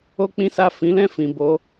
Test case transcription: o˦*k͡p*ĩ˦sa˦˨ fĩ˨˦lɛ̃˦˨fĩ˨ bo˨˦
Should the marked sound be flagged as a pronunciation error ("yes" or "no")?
no